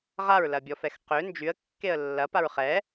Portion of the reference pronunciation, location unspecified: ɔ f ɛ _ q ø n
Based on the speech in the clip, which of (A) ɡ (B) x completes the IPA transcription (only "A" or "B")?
B